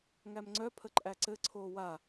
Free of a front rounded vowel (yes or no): no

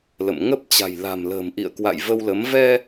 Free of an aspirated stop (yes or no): yes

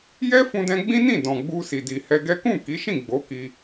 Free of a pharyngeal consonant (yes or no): yes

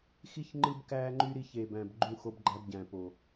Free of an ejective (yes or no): yes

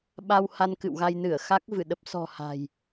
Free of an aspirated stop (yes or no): yes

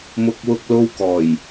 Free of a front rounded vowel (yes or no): yes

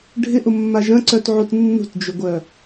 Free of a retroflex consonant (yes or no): no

